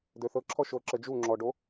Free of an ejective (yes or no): yes